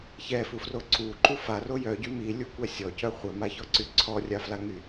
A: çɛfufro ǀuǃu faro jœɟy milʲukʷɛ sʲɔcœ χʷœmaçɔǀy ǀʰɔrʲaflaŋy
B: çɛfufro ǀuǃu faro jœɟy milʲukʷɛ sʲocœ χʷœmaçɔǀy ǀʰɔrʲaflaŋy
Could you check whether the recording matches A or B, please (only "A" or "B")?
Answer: A